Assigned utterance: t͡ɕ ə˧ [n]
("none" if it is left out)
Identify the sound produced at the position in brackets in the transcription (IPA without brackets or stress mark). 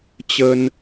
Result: n